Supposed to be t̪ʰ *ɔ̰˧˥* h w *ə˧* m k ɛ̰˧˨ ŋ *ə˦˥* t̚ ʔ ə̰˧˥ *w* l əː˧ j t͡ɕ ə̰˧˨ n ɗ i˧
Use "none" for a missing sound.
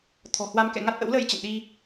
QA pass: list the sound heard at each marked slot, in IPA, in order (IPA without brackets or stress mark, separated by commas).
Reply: ɔ̤˨˩, a˧, a˦˥, w